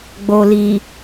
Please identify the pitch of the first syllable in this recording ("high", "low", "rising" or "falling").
low